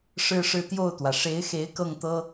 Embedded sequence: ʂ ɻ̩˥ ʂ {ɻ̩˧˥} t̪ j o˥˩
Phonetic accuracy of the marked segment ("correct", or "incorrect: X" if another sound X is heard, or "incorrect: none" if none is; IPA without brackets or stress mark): incorrect: ɻ̩˥˧